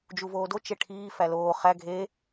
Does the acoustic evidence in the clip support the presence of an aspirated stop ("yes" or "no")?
yes